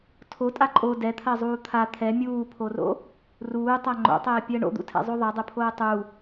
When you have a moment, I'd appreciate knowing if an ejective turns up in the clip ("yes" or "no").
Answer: yes